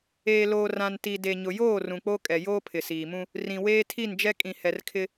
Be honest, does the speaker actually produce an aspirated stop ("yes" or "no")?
yes